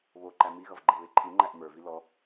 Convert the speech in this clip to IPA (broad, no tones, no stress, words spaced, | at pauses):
βo ǃæmiɣʌv ɡ͡ǃɛβeǃʰiŋ͡ǃæʔ mə˞vi lɔ